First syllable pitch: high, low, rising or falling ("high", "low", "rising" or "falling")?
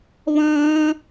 high